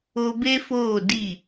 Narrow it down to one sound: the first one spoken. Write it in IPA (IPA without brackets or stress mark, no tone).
o